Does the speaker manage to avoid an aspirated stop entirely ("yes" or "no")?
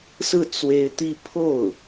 no